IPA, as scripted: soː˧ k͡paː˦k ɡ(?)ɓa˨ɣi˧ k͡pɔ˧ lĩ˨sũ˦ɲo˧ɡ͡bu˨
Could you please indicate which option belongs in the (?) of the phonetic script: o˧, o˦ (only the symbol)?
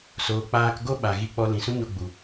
o˦